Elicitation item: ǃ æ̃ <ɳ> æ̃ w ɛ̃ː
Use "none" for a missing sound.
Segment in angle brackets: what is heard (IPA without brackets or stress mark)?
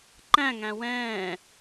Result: ŋ